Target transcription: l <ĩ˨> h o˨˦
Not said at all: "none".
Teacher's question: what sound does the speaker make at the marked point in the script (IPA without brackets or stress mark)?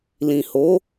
ĩ˨